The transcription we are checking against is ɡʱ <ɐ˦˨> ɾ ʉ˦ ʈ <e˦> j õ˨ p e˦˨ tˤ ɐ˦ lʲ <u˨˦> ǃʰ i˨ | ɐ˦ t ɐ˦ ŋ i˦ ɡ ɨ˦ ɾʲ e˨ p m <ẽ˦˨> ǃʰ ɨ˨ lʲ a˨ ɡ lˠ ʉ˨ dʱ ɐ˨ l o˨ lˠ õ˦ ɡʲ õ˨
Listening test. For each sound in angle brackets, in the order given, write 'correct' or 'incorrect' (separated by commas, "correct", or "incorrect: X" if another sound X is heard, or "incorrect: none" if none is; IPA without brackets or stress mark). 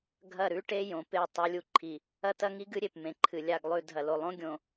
correct, correct, incorrect: u˦, incorrect: ẽ˨